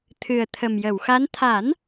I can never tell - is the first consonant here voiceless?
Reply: yes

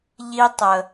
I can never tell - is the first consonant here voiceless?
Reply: no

